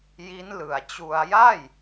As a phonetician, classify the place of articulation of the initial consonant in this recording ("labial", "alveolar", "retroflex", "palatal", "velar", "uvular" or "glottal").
palatal